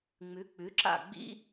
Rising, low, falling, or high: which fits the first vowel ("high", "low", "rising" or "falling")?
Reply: rising